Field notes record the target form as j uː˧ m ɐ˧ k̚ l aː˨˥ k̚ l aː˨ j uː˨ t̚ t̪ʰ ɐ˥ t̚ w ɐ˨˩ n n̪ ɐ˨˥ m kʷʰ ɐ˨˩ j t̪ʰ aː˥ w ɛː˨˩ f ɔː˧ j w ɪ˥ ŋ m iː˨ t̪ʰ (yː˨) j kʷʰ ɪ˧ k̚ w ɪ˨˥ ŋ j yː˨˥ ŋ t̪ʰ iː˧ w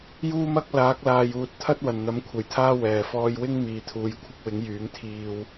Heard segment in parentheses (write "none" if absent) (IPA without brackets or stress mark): uː˨